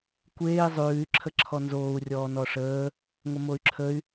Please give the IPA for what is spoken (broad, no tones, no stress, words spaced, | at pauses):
kʷeːi̯ zˤʉːy̯ ǁʰəǁʰɔnzoːu̯ rʲɔːnɔʂəː | ŋʷəmoy̯ǁʰəy̯